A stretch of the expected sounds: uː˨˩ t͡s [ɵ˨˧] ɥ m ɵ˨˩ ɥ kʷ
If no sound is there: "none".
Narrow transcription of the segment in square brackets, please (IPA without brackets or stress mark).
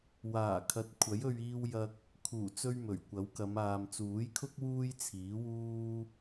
ɵ˧